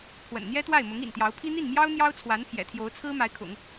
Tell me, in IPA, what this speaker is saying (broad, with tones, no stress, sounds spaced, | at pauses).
pʰ w ə̰˨˩ n n̪ j ɛ˥ t̪ w a˥˩ ɪ̯ m ʊ˧˥ ŋ ḭ˨˩ n t̪ j ɑ˧˥ ʊ̯ pʰ i˥ n̪ i˥˩ n m j ɑ˥ ʊ̯ n̪ j ɑ˥ ʊ̯ t͡sʰ w a˧˥ n pʰ j ɛ̰˨˩ t̪ʰ j o˧˥ ʊ̯ t͡sʰ ɹ̩˥ m a˧˥ ɪ̯ kʰ ʊ̰˨˩˦ ŋ